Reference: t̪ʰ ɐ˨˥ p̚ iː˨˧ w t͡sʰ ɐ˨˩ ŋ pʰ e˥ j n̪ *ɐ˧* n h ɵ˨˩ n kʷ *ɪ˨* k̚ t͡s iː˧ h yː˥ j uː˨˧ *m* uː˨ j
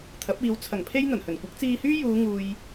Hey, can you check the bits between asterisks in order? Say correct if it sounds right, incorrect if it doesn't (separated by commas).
incorrect, incorrect, incorrect